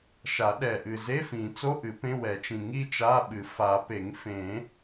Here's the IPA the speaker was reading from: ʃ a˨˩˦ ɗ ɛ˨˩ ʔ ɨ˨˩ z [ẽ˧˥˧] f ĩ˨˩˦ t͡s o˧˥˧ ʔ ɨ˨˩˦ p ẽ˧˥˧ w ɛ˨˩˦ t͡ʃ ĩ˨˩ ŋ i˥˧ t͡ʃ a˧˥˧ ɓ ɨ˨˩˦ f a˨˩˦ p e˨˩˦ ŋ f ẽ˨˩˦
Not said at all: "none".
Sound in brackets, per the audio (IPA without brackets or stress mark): e˧˥˧